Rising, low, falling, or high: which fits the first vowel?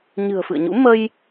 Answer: low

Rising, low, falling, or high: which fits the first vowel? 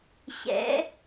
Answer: rising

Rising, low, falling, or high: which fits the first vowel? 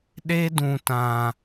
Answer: high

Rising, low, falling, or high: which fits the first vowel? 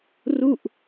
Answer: falling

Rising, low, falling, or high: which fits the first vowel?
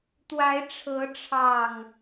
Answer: rising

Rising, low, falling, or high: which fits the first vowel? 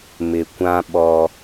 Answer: low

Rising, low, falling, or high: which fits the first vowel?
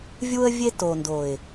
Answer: high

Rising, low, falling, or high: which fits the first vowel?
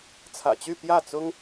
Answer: low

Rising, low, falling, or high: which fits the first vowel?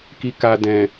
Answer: low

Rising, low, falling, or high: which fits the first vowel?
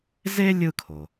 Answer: high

